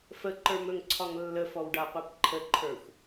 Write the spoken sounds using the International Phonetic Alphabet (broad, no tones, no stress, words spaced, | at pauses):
fəǃə˞mɵŋǀʰɒŋ lːəfɔwɖaqʷɛp ǃʰəǃʰə˞xʷ